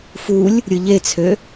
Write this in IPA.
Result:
f u lʲ | ɾʲ ɯ ʎ e t͡sʰ ø

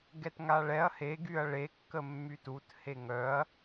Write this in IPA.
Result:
ɡ ɛ t ŋ a ɭ ɛ ɐ̯ h e ɡ y ɐ̯ ɭ e kː ə mː y t u t h e ŋ œ ɐ̯

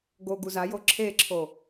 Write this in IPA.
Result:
ɡ o ɡ u z a j o ǁʰ e ǁʰ o

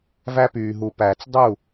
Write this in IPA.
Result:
v æ˦ p yː˨ ɦ u˨ p æː˨ t͡s dˤ u˦˨

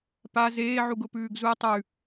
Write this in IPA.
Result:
p a z eː ʕ u ɡ ʊ p ʉː ɡ z u tˤ ʉ

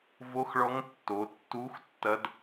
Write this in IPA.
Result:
v o˧˥ x ɭ ɔ˧˥ ŋ tː o˩˧ tː u˧˥ x tː ɐ˧˥ d

